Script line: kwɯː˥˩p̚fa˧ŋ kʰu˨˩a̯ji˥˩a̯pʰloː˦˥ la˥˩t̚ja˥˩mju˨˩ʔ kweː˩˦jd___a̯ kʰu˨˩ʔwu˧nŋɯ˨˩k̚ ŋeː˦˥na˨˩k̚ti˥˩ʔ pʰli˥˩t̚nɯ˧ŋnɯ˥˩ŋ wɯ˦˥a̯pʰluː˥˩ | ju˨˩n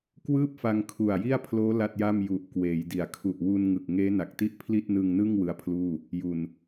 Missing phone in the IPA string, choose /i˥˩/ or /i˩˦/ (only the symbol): i˩˦